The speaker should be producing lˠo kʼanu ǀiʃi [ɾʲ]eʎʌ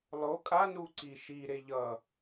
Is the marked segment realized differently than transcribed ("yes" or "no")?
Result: yes